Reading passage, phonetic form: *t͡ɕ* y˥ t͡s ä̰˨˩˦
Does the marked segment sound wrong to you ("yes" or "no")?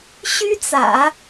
yes